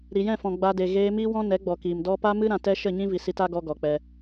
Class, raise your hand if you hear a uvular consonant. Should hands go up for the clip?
no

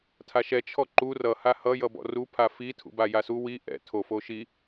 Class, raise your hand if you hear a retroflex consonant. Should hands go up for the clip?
no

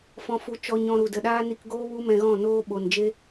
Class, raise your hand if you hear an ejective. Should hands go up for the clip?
no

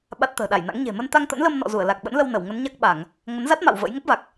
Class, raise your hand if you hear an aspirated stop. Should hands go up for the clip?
no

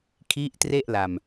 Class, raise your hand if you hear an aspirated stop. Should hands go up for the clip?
yes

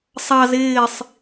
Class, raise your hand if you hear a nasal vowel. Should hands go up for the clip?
no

